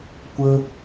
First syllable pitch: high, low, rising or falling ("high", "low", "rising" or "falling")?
high